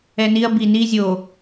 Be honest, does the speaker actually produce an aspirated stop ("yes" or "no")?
no